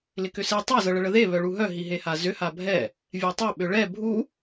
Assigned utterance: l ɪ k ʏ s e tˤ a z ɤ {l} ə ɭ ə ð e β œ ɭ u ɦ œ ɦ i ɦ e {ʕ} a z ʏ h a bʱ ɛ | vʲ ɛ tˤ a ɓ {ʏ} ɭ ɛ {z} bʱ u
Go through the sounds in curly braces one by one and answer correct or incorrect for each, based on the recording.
incorrect: ɭ, incorrect: h, correct, incorrect: none

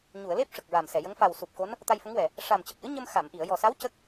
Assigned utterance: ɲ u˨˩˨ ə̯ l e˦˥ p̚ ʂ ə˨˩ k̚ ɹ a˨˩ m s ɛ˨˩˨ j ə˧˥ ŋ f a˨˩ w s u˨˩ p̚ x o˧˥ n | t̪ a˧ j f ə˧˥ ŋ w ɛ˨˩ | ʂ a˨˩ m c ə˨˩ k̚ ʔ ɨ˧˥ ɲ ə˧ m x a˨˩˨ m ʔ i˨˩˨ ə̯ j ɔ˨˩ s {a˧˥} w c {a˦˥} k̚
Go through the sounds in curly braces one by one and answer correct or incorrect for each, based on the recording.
correct, incorrect: ə˦˥

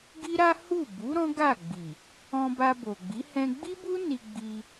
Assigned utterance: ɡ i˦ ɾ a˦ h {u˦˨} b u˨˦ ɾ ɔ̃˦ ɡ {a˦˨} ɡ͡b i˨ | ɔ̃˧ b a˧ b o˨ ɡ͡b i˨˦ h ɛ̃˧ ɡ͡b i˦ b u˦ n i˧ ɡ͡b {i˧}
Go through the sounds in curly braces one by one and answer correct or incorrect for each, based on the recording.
correct, correct, correct

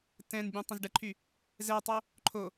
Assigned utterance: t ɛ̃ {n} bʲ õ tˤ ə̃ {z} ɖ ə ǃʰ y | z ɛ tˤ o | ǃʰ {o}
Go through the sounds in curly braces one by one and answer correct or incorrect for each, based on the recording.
correct, correct, correct

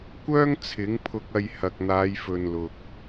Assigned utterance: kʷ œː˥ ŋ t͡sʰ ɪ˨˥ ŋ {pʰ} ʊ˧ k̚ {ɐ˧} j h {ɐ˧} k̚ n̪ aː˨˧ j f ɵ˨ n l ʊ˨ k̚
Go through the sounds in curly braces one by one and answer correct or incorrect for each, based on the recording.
correct, correct, incorrect: ɐ˨

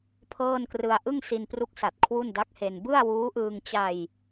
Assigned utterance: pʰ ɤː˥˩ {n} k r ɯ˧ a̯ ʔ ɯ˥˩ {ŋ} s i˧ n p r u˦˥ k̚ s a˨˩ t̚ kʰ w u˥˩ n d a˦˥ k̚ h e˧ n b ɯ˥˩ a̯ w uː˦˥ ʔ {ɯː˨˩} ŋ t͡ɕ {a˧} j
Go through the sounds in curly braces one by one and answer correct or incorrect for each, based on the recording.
correct, correct, incorrect: ɯː˧, correct

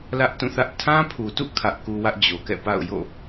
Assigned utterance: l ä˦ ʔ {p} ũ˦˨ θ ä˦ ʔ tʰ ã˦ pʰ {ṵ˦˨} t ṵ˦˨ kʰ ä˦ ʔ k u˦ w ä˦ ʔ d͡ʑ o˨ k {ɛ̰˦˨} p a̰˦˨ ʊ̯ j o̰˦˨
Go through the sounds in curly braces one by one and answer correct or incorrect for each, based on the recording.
incorrect: t, incorrect: u˨, correct

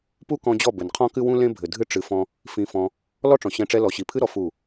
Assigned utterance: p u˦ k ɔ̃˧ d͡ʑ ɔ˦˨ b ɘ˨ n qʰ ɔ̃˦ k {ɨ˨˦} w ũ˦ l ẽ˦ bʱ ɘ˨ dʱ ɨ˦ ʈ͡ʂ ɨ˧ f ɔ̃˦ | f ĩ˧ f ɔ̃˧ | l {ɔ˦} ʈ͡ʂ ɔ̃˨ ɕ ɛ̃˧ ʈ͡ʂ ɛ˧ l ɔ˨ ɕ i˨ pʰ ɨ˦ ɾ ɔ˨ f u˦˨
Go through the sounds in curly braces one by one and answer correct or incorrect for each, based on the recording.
incorrect: ɨ˦, correct

